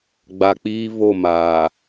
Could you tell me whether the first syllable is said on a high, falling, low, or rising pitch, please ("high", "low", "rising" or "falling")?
low